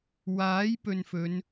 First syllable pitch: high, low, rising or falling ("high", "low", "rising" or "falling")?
rising